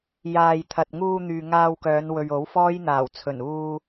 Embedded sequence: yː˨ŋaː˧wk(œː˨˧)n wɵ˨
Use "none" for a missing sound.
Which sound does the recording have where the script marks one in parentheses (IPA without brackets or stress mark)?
œː˨˧